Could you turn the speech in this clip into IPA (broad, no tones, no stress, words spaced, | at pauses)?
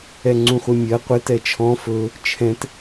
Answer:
ɛŋ͡ǀũχʷɪmʲɜ qʷɪ tɛt͡ʃʰɔ̃ fɵ | t͡ʃʰɛ̃t